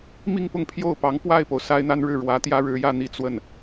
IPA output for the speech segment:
mi˥˧ŋpʊ˥˧ŋ pʰjo˥˩ʊ̯pɑ˧˥ŋ pwa˥˩ɪ̯po˩ʊ̯ sa˥ɪ̯n̪a˥nɻɻ̩˥˩ ɻwä˧˥ t̪jä˥ɻɻ̩˧˥jä˥˧ n̪i˥˧t͡swə˥˩n

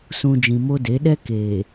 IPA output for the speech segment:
sũ˨ d͡ʒĩ˨mo˦de˨˦ ɗɛ˦keː˨

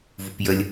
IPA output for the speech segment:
vupjəlʲ

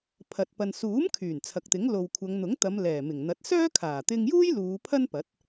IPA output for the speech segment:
pʰɐ˨t̚ pɐ˨nsuː˨˥mkʰyː˨˩n t͡sʰɐ˨k̚t̪ɪ˨˥ŋ lo˨wkʷʰɐ˨˧ŋn̪ʊ˨˥ŋt̪ɐ˨˧m lɛː˨˩mɪ˨˩ŋn̪ɐ˨˥t̚ sœː˥kʰaː˨˩t̪ɪ˧ŋjuː˥j luː˨˧pʰɐ˥n pɐ˨˥t̚

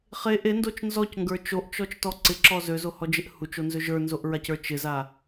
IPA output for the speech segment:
χe ʔendot͡ʃ nzɔcŋɡə˞ t͡ʃoʔt͡ʃɔt͡ʃtɔ ǀɪǁɔ zøzohɔd͡ʒɪʔ hut͡ʃonzø ʒə˞nzoʔɹacə˞ t͡ʃɪza

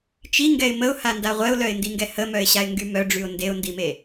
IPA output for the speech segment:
t͡ʃiŋɡɛɪ̯ məʊ̯handa ʁʷɛʊ̯lœɪ̯ndiŋɡɛ həmœɪ̯ɕaɪ̯ŋɡy mœɖ͡ʐyʊ̯ ndeʊ̯ndime

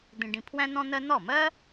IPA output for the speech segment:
d̪ĩ˧ɖĩ˧pʰwæ̃˥ n̪ɔ̃˥n̪ɜ˥ n̪ɔ˥˩mɜ˥

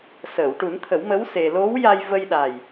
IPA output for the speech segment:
səː˨˩˨wʈu˨˩˦nt̪ʰə˨˩˦wmə˧˥w se˧ lo˧˥wja˧j və˧jɗa˨˩j

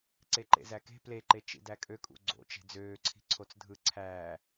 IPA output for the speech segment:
ǀeǃḛzæke̤ pleǃe t͡ʃḭdækʼøkʼṵ ɡ͡ǀo̰ t͡ʃe̤d͡zøːǀʰi̤ǀʰot͡s dʱɯǀʰæː

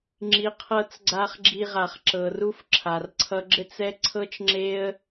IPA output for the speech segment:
ŋ͡ǁi˨qʰɤ˧t͡sɡ͡ǀa˧χ ɡ͡ǁi˧ʁa˨χ ǁɤ˨ru˦fǁʰa˨r ǀʰʌ˦ ɡ͡ǁɘ˦t͡sɛ˦ǀʰɤ˦t͡ʃŋ͡ǁe˦ə̯

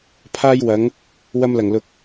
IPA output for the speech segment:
pʰaː˥jwɐ˨˥ŋ | wɐ˧mlɐ˨˩ŋlʊ˨˥k̚

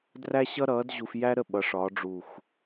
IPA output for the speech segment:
dræ˥ɕʌ˥ɾʌː˨˥dʑu˧f jæ˥ɾə˥˨ ɓʌ˨˥ʂɒ˨˥ɖ͡ʐu˧˩x

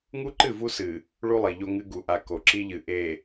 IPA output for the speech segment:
ŋu˦ǃɨ˦˨vu˦ sɨ˨ | ɭu˦lˠi˨ʎo˦ŋɨ˦ ɡu˨ʔa˨ ko˨ǁi˦ʎɨ˨ ʔe˨

